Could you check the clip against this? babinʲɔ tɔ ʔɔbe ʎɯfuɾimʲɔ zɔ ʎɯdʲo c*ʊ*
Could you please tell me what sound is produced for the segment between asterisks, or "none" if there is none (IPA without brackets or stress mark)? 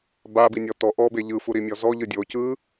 ɯ